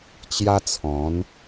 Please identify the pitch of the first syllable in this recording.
high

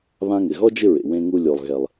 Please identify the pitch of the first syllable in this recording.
high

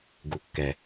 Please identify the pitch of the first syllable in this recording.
low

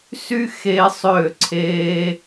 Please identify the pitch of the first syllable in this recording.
high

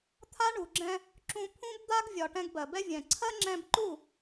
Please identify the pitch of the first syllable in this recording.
high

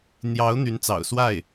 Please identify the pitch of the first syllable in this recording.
rising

